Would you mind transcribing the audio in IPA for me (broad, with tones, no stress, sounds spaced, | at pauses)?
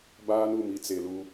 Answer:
b aː˦ n u˨ m i˨ t͡s e˨ l u˦